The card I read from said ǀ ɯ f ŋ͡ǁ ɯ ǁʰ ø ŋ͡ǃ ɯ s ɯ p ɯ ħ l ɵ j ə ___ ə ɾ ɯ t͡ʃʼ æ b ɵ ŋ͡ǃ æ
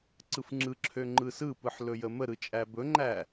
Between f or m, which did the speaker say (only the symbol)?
m